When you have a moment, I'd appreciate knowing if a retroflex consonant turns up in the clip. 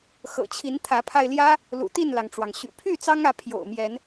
yes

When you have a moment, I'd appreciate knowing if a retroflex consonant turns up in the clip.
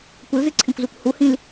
no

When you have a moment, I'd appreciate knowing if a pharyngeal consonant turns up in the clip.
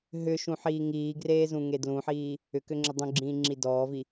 yes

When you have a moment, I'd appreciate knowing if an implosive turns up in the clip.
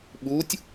yes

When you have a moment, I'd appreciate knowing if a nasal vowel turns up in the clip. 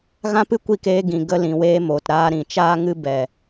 yes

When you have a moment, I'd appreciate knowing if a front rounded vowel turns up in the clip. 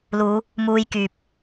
yes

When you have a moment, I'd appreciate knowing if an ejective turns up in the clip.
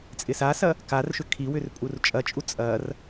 yes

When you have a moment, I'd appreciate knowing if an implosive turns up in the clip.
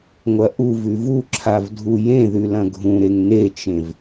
no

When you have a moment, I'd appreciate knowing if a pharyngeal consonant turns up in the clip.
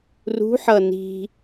yes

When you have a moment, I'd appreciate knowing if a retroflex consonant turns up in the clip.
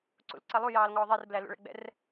yes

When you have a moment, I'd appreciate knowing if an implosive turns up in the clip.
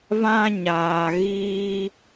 no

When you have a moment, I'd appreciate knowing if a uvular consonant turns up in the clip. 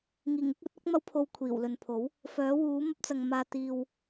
no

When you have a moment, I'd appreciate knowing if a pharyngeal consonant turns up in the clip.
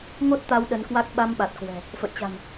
no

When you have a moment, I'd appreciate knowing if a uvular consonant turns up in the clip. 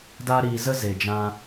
no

